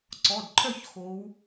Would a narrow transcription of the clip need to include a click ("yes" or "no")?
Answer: yes